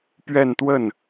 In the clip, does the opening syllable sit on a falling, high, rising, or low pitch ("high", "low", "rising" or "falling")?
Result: falling